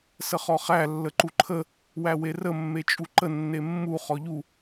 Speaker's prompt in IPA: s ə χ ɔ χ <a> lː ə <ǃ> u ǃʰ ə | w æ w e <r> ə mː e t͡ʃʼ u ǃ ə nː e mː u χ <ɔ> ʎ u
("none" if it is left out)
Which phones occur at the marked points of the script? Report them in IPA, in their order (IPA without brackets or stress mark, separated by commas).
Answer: æ, ǃ, r, ɔ